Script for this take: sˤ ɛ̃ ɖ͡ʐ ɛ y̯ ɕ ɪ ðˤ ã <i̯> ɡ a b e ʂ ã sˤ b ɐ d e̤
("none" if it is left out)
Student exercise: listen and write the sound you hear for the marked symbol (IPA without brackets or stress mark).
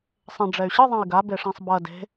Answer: i̯